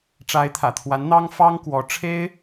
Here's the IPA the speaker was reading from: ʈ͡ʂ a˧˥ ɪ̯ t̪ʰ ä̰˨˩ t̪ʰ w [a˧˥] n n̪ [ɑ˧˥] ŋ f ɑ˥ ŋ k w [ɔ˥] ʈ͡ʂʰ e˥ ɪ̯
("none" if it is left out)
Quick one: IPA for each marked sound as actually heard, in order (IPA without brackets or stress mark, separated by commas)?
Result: a˧˥, ɑ˥, ɔ˧˥